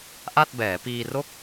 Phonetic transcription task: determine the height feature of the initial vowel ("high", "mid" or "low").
low